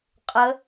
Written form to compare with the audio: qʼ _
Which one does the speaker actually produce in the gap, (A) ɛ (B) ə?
B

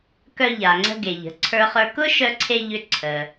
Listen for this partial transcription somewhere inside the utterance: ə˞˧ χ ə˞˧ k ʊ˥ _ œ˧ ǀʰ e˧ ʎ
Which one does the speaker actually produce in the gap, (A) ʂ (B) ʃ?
B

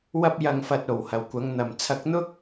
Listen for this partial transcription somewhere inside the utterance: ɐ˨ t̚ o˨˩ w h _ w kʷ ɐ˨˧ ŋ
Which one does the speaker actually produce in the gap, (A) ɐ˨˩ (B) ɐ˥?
A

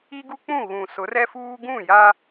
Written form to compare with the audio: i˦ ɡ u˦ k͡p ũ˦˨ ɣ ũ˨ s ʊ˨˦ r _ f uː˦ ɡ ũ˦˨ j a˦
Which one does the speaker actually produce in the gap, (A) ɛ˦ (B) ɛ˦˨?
A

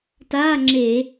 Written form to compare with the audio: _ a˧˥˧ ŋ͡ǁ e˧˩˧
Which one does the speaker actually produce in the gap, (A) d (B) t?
B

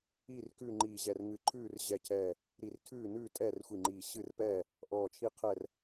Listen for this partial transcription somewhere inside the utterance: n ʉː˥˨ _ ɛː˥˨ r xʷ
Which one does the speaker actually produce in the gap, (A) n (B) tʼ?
B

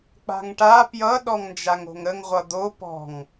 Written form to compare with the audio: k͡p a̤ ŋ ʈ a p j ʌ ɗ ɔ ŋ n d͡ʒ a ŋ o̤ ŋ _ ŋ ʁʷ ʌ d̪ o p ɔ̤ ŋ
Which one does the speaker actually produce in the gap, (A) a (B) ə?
B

